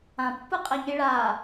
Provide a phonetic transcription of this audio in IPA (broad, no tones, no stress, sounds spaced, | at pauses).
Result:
ã pː ɯ qʼ ɛ ɲ i ɭ a